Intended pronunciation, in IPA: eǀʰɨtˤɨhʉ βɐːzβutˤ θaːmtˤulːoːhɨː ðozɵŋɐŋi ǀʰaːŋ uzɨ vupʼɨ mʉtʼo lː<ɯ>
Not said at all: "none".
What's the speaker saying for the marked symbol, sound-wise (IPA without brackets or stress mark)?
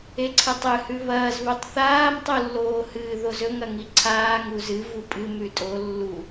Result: u